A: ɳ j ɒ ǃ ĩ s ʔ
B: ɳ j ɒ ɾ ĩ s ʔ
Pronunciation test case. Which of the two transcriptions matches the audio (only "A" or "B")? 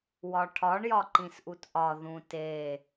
A